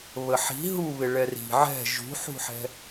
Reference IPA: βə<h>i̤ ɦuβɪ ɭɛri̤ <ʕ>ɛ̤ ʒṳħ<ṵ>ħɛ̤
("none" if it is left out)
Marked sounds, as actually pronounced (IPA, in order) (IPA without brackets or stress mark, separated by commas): ħ, ʕ, ṳ